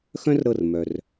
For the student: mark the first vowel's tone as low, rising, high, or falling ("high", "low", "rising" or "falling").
high